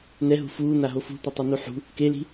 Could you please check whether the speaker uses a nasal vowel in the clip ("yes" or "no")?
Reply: no